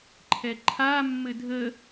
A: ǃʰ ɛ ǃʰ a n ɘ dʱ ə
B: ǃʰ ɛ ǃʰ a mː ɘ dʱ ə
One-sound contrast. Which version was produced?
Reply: B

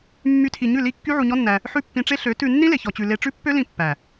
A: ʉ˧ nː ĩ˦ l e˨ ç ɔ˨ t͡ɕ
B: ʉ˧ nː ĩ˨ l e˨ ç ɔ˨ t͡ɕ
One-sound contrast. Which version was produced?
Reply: A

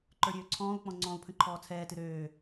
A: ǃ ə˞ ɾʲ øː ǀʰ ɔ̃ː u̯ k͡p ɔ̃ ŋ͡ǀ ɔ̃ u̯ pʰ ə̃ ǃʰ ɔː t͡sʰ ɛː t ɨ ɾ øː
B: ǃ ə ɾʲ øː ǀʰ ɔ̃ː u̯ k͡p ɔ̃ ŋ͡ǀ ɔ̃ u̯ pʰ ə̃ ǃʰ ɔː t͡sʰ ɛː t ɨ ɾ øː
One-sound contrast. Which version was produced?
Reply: A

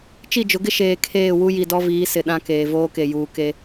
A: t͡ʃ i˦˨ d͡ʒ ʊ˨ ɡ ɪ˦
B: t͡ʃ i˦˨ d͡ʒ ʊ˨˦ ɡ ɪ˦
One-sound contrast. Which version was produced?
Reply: B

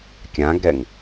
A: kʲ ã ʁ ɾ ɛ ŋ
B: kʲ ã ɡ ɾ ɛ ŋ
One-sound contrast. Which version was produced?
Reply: B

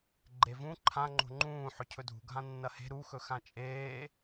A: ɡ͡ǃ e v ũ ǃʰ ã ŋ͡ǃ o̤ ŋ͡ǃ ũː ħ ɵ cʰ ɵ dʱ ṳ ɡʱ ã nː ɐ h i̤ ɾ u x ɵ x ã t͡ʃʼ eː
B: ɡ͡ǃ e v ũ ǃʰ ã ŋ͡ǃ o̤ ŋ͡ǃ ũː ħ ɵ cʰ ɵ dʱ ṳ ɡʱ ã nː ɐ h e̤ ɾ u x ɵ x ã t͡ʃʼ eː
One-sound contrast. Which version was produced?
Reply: B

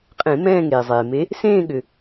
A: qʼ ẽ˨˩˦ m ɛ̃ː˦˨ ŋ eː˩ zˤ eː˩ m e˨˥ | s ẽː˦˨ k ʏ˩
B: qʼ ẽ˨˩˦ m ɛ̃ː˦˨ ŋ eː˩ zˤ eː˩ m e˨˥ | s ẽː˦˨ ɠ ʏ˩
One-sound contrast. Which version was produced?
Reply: B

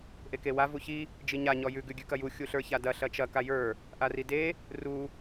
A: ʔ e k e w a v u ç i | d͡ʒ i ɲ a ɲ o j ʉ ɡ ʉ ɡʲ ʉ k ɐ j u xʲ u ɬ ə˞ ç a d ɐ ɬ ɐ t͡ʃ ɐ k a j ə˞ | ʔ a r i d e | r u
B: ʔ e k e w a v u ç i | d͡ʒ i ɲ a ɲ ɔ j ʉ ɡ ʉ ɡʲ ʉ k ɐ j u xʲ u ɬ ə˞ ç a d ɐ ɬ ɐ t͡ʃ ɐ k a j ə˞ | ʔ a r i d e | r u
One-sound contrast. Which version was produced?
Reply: B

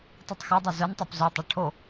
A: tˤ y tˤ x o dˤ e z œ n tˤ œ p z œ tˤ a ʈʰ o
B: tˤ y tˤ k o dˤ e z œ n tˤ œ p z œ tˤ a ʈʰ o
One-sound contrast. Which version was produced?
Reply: A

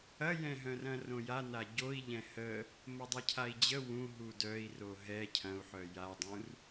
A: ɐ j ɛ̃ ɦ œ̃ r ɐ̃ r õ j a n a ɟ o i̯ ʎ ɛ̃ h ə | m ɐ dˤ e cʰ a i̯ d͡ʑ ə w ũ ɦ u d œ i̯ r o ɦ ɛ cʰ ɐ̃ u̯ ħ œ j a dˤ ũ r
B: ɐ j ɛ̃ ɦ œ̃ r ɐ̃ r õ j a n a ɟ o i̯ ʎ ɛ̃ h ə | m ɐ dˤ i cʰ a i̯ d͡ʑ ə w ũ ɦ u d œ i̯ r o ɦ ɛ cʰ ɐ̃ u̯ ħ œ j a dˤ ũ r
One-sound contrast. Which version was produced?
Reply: A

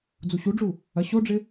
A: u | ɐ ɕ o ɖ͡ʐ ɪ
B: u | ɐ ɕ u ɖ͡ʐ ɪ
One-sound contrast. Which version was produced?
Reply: A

